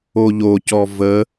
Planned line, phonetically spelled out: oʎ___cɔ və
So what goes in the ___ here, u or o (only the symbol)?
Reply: o